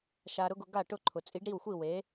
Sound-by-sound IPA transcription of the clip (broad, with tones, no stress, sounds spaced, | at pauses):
ʃ a˧ ɾ ʊ˥ ɡ ʊ˧ ɡ a˥˩ ʈ ʊ˥˩ ǃʰ ʊ˩ t͡sʼ i˩˥ ɖ ɾ i˥˩ w xʷ i˥˩ w e˩˥